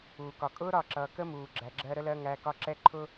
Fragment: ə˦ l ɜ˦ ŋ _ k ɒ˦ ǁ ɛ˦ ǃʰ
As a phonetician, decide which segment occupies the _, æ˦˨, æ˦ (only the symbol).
æ˦